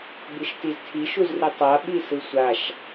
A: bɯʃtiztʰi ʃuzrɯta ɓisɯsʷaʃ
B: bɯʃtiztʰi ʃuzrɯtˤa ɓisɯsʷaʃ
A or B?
B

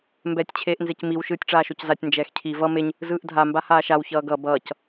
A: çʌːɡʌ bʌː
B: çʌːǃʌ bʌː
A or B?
A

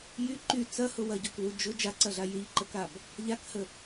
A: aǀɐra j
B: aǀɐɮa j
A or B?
B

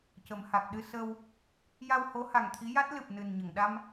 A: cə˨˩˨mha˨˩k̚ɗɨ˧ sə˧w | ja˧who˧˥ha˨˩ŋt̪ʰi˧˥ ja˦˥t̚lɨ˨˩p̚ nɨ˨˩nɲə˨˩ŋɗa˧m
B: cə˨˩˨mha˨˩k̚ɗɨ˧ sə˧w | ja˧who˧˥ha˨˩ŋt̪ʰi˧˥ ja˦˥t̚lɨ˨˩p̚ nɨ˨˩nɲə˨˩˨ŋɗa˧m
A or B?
B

